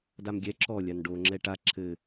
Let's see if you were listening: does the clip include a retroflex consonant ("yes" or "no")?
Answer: yes